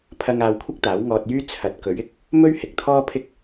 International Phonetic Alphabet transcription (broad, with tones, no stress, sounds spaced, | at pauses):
pʰ ɐ˧ ŋ aː˧ w kʷʰ ɪ˥ k̚ t̪ aː˨˥ w ŋ ɔː˧ t̚ j yː˥ t͡sʰ ɐ˨˥ t̚ k ɵ˨˥ ɥ ɪ˥ k̚ | m ɵ˥ ɥ h ɪ˨˥ k̚ t̪ʰ ɔː˥ pʰ ɪ˥ k̚